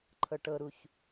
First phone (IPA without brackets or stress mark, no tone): ǃʰ